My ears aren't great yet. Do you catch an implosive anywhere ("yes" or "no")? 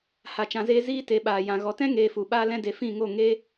yes